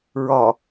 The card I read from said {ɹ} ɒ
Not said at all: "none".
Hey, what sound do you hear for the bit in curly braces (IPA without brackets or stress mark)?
ɹ